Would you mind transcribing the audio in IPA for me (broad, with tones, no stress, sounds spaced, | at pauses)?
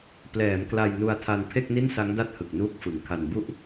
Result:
p l ɛː˩˦ m k l a˧ j n u˧ a̯ tʰ a˧ n pʰ e˥˩ k̚ n i˥˩ n s a˦˥ ŋ d a˥˩ t̚ h ɯ˨˩ k̚ n uː˦˥ k̚ f ɯ˩˦ ŋ kʰ a˧ n b u˥˩ ʔ